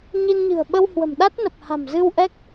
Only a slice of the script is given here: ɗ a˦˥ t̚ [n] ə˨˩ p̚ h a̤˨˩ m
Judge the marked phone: correct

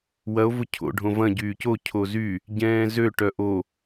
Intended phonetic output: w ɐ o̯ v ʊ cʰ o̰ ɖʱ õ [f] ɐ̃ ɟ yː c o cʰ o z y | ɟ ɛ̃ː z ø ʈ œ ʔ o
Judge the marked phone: incorrect: v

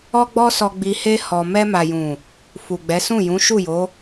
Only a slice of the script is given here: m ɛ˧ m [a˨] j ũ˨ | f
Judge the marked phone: correct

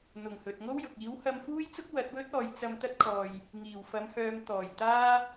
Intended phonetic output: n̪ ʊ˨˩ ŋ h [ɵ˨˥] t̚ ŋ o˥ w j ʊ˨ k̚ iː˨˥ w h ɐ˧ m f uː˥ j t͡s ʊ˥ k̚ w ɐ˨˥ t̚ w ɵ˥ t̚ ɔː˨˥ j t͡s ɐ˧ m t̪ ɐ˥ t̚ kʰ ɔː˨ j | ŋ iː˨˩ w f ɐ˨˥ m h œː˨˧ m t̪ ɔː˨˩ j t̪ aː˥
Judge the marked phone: incorrect: ɵ˨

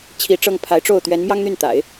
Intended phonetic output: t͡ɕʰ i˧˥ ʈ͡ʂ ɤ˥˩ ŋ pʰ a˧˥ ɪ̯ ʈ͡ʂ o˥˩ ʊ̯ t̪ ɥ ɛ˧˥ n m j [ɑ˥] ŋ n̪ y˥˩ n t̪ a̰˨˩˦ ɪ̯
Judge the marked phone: correct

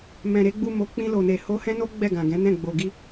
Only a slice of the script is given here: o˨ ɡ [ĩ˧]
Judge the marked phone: incorrect: i˧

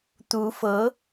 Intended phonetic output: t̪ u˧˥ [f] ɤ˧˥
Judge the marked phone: correct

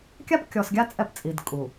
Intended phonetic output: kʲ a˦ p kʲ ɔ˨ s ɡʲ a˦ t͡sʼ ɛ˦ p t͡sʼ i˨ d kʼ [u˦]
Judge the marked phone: incorrect: u˨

